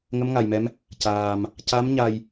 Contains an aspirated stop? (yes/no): no